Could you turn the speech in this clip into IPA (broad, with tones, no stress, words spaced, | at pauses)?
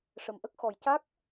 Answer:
ʂə˨˩mʔə˦˥k̚ xɔ˨˩jca˦˥k̚